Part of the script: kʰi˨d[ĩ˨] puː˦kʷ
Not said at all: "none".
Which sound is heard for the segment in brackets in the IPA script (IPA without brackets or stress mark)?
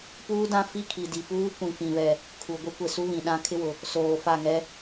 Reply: i˨